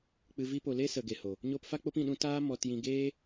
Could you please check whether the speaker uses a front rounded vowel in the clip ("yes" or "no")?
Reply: no